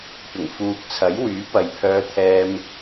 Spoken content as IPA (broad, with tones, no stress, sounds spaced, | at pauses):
p ɪ˨˩ ŋ f uː˨ k̚ t͡sʰ ɐ˨˥ j w yː˨˥ p ɐ˨˧ j pʰ œː˧ t̪ʰ ɛː˧ m